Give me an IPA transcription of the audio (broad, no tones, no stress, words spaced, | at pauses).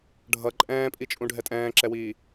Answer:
ɖʱʌ ǃʼɛ̃ːpʼit͡ʃʼũ ɖʱɛtʼɛ̃ːǁɛwiː